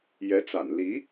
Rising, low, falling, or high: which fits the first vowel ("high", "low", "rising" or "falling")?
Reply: rising